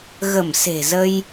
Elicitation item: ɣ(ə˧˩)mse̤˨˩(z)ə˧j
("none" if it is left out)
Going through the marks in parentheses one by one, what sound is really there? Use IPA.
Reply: ə˧˩, z

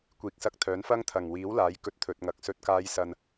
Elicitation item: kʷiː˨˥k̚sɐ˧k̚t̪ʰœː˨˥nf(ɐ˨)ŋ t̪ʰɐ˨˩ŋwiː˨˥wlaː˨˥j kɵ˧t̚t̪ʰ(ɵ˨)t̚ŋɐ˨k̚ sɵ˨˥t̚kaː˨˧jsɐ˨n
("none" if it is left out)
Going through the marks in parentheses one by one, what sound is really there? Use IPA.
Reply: ɐ˥, ɵ˨

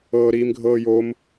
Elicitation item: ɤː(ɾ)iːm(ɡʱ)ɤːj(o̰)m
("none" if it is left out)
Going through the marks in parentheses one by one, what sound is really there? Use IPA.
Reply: ɾ, ɡʱ, o

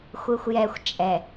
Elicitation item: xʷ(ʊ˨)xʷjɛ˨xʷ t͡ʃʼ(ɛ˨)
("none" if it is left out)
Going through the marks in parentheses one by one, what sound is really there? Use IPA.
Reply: ɯ˨, ɛ˨

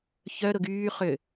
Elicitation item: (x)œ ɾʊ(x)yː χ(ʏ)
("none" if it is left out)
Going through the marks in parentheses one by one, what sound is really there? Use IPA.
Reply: ç, ɡ, ʏ

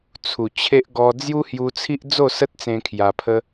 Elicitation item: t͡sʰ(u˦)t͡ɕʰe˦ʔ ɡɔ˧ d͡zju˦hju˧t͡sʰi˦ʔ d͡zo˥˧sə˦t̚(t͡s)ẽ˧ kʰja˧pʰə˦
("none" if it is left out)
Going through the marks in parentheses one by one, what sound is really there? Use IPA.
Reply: u˨˩, t͡s

